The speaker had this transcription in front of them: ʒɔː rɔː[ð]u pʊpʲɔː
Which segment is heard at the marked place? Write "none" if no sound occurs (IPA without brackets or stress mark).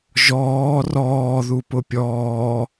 ð